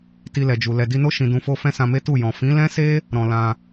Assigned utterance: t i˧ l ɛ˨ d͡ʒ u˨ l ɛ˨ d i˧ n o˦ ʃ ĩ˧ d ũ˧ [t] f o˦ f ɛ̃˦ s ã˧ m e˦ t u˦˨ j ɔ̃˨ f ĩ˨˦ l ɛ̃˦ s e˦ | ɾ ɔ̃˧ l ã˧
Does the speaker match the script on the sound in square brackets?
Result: no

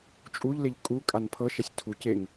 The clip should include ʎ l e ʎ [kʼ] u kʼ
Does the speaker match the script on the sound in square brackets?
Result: yes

